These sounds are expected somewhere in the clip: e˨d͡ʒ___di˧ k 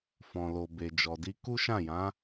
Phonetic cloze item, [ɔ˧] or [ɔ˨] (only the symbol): ɔ˨